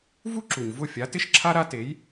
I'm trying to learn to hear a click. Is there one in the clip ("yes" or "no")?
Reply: yes